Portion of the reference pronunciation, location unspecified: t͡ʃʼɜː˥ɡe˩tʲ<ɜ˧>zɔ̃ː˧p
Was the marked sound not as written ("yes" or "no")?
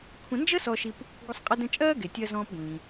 no